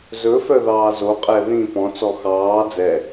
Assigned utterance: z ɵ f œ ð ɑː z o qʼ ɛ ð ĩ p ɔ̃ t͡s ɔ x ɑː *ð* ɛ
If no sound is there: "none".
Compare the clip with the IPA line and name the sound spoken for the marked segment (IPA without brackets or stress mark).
d͡z